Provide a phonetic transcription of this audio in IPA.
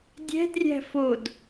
dʲ ɛ̤ d rʲ æ̤ f o d

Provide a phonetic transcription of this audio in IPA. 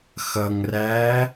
x ʌ ŋ r æː

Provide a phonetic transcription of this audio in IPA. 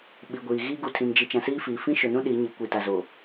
ɓ i˨ ɡʷ iː˨ ɣ iː˦ ɡ u˨ tʰ ĩ˨ n d͡ʒ i˨ t͡ʃ ã˨ s iː˦ f iː˨ f ĩ˦ ʃ ʊ˨ n ũ˦ ɗ i˨˦ ɲ i˨ kʷ i˨ t a˨ z o˨

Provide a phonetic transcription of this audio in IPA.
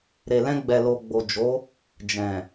ɾ e˨ l ɛ̃˧ ɡ͡b ɛ˨ l o˨ ɡ͡b o˨ d͡ʒ o˨˦ | d͡ʒ ɛ̃˨

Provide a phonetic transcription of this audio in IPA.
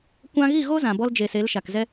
kʷ ã˧ ɣ i˦˨ ɣ o˦ z ã˨ b ɔ˧ l d͡ʒ e˨ s e˨˦ l ʃ a˨ k z ɛ˦

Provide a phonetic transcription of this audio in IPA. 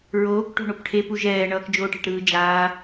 ɹ oː k ʈ o̤ ɳ o p ʈʰ e p u ʒ ɛː ɳ ʌː k d͡ʒ oː ʈ e̤ ʈ ɾ ɯː d͡ʒ aː

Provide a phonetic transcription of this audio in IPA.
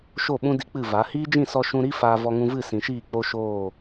ʃ o˦˨ ɓ ũ˦ d i˦ k͡p ɨ˦˨ v a˨˦ h iː˦ d͡ʒ ĩ˦˨ s ɔ˧ ʃ ũ˧ ɾ i˦ f aː˧ v ɔ˧ ŋ ũ˧ v ɨ˦˨ s ĩ˨ ʃ iː˦˨ k͡p o˦ ʃ oː˦˨

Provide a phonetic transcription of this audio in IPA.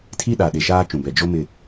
tʰ i˦ ɗ a˨ ɗ e˨ ʃ aː˦ t͡ʃ ũ˨ b ɛ˨ d͡ʒ o˦ m ɪ˦˨

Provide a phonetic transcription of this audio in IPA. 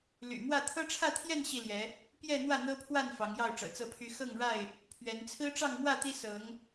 l y̰˨˩ m w ä˥˨ t̪ʰ ɤ˦ ʈ͡ʂʰ ä˥˨ t̪ʰ j ɛ˥˨ n ɕ i˥˨ l j ɛ˨˦ | p j ɛ˥˨ n̪ w ä˥˨ n̪ ɤ˦ pʰ w a˥˨ n f ɑ˨˦ ŋ j ɑ˥˨ ʊ̯ ʈ͡ʂ ɤ̰˨˩ t͡s ɤ˥˨ pʰ y˦ x ɤ˥˨ ŋ ɻ a˥˨ ɪ̯ | pʰ ɥ ɛ˨˦ n t͡sʰ ɹ̩˦ ʈ͡ʂ ɑ˥˨ ŋ m w ä˥˨ t̪ i˦ s ɤ˨˦ ŋ

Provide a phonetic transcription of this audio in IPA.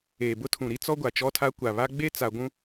eː˨ b ʊ˦ tʰ ũ˨ ɾ i˦ t͡s ɔ˦ ɡʷ a˨ t͡ʃ ɔ˦ tʰ a˦ kʷ a˨ β a˦ ɡ͡b e˦ t͡s a˨ ɡʷ ũ˦

